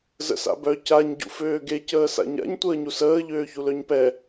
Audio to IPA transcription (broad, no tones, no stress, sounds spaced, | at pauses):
z ə̰ s a̰ b œ c a ɲ ɟ ṵ f øː ɡ e c əː s a̰ ɲ a̰ ɲ tʷ əː ɲ u s əː ʎ øː ç u l œ ɲ p ɛ